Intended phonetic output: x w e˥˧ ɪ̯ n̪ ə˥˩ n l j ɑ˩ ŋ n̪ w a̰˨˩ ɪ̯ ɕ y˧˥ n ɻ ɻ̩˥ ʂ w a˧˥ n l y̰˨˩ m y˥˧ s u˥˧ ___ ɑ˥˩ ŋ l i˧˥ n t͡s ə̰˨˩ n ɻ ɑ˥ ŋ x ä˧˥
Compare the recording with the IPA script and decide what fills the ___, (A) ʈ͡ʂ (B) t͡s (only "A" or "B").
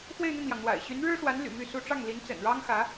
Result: A